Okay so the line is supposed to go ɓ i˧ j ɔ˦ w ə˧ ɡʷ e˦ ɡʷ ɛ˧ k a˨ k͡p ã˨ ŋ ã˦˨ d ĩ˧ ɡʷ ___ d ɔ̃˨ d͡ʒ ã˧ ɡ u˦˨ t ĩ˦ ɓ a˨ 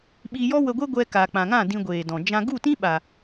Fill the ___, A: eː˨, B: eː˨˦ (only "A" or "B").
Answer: A